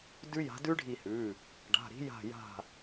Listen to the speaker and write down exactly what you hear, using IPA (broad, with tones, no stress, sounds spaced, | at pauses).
d ʉ˦˥ j a̤˨˦ d ʉ˦˥ ɖʱ i˧˩ h ʉ˩˧˩ | ɖ a̤˩˧˩ ɾ i̤˨˦ j a̤˧˩ j a̤˧˩